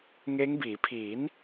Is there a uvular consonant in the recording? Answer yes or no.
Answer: no